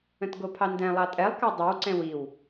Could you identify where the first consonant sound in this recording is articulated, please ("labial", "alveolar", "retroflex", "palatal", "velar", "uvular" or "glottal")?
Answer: alveolar